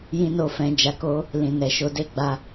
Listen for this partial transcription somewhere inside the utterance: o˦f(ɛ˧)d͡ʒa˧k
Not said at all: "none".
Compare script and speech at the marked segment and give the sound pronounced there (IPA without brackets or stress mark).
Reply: ɛ̃˧